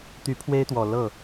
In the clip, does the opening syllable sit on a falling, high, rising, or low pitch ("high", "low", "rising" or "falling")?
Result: rising